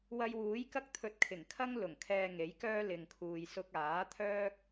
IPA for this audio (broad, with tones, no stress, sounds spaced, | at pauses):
w ɐ˧ j w uː˨˥ j k ɐ˥ k̚ t̪ʰ ɵ˧ t̚ kʰ ɪ˨˩ ŋ kʰ ɐ˥ ŋ l ʊ˨˩ ŋ kʰ ɛː˧ ŋ e˨˥ j k œː˥ l ɪ˧ ŋ kʰ uː˧ j s ʊ˧ k̚ aː˨˥ t̪ʰ œː˥ k̚